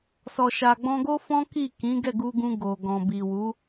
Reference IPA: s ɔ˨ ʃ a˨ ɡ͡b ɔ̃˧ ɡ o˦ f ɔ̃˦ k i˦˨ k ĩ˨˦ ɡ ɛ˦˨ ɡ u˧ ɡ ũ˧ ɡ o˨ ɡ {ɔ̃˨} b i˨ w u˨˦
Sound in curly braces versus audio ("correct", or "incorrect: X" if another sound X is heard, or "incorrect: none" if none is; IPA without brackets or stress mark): correct